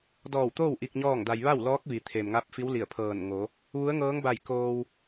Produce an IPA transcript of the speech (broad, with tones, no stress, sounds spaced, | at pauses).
d ɔː˧˩ w t̪ oː˥˨ w ʔ i˧ k̚ ɲ ɔː˥˨ ŋ d a˧ j ʋ a˥˨ w l ɔː˧˥ k̚ ʋ i˩˧ t̪ʰ e˩ m ŋ a˧˥ p̚ f i˧˥ w l i˧˩ ə̯ pʰ ɤː˧˩ n ŋ o˩˧ | ʋ u˧˥ ə̯ ŋ ɤː˧˥ ŋ b a˧˩ j k oː˧ w